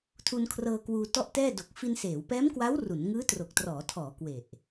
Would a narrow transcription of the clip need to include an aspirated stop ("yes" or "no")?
yes